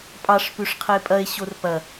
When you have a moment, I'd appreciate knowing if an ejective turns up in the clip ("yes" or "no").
yes